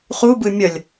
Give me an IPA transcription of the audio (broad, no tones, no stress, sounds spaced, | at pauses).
χ u b ɯ mʲ ʌ lʲ